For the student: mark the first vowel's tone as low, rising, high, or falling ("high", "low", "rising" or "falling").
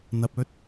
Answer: low